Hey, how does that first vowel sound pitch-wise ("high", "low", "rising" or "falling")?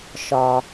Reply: low